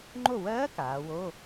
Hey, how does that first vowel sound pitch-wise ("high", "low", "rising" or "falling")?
falling